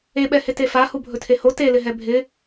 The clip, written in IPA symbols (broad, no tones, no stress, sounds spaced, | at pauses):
e ɓ ɛ h ɪ t e f a h u bʱ ɵ tʰ e h o t e l ɪ ɦ ɛ bʱ ɪ